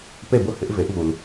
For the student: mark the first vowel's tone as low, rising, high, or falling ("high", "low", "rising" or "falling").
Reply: falling